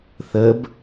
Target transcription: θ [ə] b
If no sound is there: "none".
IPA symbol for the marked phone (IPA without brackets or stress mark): ə